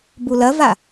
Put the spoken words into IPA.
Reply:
b u l ɐ v a

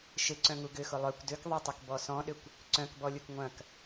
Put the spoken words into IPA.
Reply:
ʃ ɪ ǀ œ̃ ŋ u ɡ ʏ x ʊ lˠ œ kʷ d ø k ðˤ ɛ tˤ ʏ k b ɔ s ɔ̃ ɗ ʏ kʷ | ǀ œ̃ k b ɔ lʲ u k ŋʷ ɐ̃ k

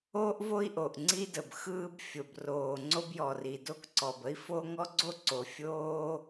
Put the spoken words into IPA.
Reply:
oː˥ ʔ v o˥ i̯ ʔ o˩ ʔ ŋ͡ǀ i˥ d ə˩ b x ɯː˥ b fʲ o˩ b r oː˩ ŋ͡ǀ o˥ b j ɔ˩ r i˩ d o˥ k ǀ ɔ˩ b ə˥ i̯ f o˥ ŋ ɔ˥ ɡ͡ǀ o˥ ǀ o˩ fʲ oː˥

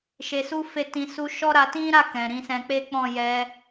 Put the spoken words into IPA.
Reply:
ʃ e˧ s u˦ f e˦˨ t ĩ˧ s u˧ ʃ ɔ˦ ɾ a˧ t ĩ˦ ɾ a˦˨ k ɛ̃˨ ɾ ĩ˨˦ s ɛ̃˧ k͡p e˦ k͡p ɔ̃˦˨ j ɛ˧

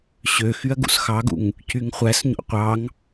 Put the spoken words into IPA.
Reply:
ɕ ø x y ɐ̯ ɡ ṵ s x ɑ ɡ ṵ ŋ | c y ŋ χʷ æ s ɲ o̰ qʷ ɑ ŋ

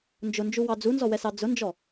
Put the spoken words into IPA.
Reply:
n d͡ʒ ʊ n d͡ʒ u w ɑ d͡z u n z ɔ w ɛ s ɑ d͡z ʊ n d͡ʒ ɔ

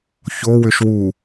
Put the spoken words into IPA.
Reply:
ç o w ʏ ʃ w u

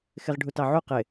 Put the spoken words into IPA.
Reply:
x ɪ ʁ ɖʱ u t ɑ ʕ u q ɪ

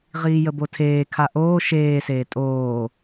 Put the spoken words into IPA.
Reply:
ʁ iː j ə b o tʰ eː kʰ a ʔ oː ʃ eː s eː tʼ oː

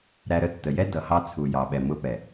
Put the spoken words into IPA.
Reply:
ɾ æ˧ ɾ ə˧ tː ə˨ j ɛ˦ d ʌ˨ h ɑ˧ t͡sʰ u˨ j ɑ˨ ɓ ɛ˨ m ʊ˧ p ɛ˨

